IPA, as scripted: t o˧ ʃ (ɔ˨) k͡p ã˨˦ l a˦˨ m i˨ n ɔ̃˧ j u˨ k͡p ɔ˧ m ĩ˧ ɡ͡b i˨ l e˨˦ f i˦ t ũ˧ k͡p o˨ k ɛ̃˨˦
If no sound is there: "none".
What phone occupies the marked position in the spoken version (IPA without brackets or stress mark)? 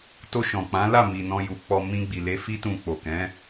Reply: ɔ̃˨